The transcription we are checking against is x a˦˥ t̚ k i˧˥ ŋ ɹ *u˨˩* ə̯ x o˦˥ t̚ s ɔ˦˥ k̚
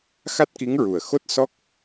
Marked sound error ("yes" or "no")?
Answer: no